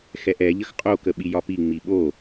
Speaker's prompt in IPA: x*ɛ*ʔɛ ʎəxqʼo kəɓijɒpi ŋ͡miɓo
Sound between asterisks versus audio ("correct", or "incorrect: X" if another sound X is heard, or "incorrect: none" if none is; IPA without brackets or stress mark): correct